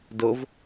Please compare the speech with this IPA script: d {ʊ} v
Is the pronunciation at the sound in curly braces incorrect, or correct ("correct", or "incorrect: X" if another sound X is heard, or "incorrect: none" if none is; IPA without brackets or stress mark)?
correct